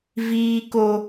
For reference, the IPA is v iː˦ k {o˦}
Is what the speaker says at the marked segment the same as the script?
yes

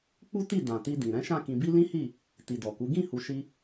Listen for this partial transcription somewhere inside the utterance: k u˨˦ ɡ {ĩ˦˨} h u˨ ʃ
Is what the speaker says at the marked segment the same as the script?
yes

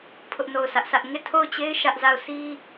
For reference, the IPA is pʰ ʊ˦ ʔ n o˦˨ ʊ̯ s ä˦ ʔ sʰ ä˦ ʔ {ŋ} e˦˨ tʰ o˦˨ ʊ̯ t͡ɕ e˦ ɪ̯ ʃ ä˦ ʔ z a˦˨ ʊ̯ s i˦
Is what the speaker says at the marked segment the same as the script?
yes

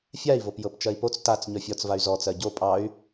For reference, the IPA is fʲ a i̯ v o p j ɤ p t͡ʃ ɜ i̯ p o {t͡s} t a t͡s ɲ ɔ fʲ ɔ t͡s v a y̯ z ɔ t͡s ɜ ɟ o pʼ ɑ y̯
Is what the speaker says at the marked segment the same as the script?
yes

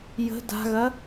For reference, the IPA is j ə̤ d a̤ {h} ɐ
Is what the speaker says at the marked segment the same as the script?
no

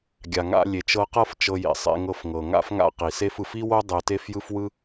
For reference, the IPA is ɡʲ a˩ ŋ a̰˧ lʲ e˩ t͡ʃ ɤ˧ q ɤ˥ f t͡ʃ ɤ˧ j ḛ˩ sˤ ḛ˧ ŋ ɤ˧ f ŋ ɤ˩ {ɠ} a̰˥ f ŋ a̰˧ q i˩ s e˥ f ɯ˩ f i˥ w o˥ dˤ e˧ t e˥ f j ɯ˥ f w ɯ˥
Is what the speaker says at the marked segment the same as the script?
no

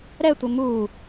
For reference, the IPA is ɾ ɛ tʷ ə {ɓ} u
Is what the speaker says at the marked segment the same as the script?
no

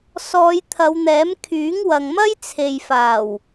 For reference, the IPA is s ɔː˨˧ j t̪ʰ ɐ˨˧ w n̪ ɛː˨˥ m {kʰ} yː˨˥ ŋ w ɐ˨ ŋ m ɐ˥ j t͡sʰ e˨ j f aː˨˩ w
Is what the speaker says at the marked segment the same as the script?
yes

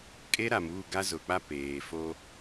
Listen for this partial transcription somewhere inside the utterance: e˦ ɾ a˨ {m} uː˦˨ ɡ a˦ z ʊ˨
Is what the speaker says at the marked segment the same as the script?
yes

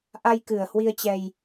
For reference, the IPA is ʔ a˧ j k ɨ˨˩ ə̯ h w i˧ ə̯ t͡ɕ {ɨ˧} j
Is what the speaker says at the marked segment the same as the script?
no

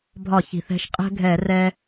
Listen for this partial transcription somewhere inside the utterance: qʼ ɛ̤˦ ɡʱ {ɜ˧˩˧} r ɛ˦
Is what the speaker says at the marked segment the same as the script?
no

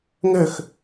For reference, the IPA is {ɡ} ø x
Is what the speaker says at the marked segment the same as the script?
no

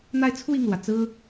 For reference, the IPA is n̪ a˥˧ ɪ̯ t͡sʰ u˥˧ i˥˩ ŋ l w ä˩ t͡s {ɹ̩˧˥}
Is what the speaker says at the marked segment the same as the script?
no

